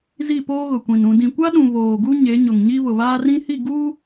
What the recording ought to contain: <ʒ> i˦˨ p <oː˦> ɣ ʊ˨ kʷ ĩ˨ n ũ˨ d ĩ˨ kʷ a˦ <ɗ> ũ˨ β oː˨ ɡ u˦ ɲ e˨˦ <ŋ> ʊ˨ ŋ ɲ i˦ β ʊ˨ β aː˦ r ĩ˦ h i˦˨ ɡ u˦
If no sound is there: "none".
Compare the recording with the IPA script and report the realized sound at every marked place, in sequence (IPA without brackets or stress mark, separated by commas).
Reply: z, oː˦, ɗ, ɲ